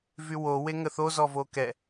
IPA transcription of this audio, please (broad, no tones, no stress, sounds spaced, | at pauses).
v y w o w e ŋ ə θ o z ɔ v o k ɛ